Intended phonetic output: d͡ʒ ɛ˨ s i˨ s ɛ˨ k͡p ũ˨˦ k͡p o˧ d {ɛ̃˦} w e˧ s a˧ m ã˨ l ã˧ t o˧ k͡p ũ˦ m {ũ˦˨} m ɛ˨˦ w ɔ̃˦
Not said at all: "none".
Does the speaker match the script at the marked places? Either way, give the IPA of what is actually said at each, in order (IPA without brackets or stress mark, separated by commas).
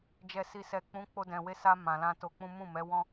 ɛ̃˨, ũ˦˨